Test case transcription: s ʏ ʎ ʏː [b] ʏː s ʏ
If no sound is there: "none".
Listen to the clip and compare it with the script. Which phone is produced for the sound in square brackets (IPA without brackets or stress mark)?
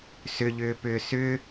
p